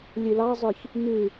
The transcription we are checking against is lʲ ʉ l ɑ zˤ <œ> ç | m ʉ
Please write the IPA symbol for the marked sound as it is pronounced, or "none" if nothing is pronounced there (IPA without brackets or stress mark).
ø